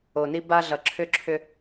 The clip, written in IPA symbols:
o˨ n i˦ b a˦ ɮ ʌ˨ ǁʰ ʏ˦ ǁʰ ʏ˦

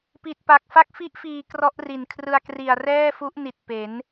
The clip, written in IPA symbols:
p i˨˩ t̚ p a˨˩ k̚ f a˦˥ k̚ f i˦˥ ʔ f iː˨˩ k r ɔ˦˥ ʔ r i˨˩ n kʰ r ɯ˧ a̯ k r i˨˩ a̯ r ɛː˥˩ f u˦˥ ʔ n i˨˩ t̚ p e˩˦ n

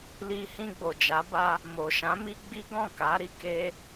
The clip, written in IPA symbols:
l i˧ h ĩ˧ ɡ͡b o˨ d͡ʒ a˨˦ b a˧ | m o˨ ʃ ã˨˦ m i˦ ɡ͡b i˦ ɡ ɔ̃˦˨ k a˨˦ ɾ i˦˨ k e˧

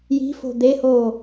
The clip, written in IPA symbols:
j i̤ f o̤ d̪ e h oː

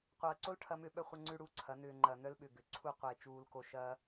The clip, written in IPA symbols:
qʷ ɐː˨ ǀ o˦ l ʈʰ ɐː˦ m ʏ˦ ɓ œ˦ χʷ ɐ˦ ŋ͡ǀ ʉ˦ ɽ uː˨ ǀʰ ɐ˨˦ n ʏː˨ ŋ͡ǃ ɐː˨ n œ˦ l ɓ ʏ˨ ɡ ʏ˨˦ ǀʰ u˦˨ qʷ eː˨ t͡ʃ uː˨ l k o˨ ʃ ɐː˦

